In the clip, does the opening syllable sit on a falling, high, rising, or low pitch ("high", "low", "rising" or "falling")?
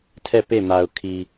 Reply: falling